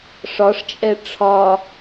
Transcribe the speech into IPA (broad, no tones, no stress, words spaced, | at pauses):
ʂɒʂt͡ʃʼɛ ʈ͡ʂʰɒ